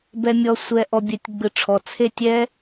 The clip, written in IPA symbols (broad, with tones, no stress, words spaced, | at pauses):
bɛ˩mʲɔ˩ sʷɛ˩ʔɔ˩ bʲɛ˩tʲɡ͡bɯ˩ ʈ͡ʂʰɔ˩ t͡sʰe˦˨tʲɛ˦˥